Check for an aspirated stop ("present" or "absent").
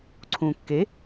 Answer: present